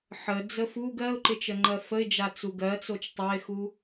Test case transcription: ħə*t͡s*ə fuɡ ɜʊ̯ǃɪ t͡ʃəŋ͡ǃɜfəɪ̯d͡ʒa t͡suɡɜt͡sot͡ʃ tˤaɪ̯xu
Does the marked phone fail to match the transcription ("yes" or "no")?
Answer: yes